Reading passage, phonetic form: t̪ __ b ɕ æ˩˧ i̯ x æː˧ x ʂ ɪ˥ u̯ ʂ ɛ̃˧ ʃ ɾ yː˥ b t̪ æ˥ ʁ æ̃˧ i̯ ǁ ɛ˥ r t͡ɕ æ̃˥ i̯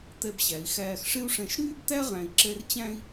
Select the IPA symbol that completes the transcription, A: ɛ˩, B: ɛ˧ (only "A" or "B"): B